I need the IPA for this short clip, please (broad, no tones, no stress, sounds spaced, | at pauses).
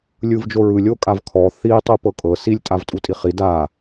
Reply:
lʲ ɯ v d͡ʒ o ɹ ɯ lʲ o kʼ a v kʰ ɔ θ i tˤ u p ɤ kʼ ɤ s i lʲ tʼ a v tʼ u tʼ i χ i d a